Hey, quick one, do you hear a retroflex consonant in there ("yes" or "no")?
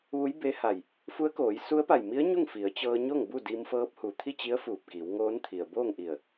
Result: no